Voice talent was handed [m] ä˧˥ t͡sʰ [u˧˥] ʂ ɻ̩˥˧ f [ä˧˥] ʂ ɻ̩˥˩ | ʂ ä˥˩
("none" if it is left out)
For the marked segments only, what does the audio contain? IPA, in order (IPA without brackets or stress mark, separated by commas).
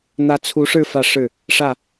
n̪, u˧˥, ä˥˧